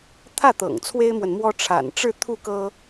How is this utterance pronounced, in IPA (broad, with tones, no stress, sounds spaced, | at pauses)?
t̪ʰ ä˥˩ t̪ ɤ̰˨˩ ŋ t͡sʰ w e˥ ɪ̯ m w ə˨ n m w ɔ˥ ʈ͡ʂʰ a̰˨˩ n ʈ͡ʂ ɻ̩˥˧ t̪ʰ u˥˩ k ɤ˥